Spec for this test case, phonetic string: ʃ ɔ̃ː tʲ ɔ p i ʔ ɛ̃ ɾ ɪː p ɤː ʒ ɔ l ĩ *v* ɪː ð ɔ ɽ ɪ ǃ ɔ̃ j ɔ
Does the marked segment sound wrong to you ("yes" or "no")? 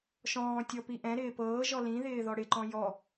yes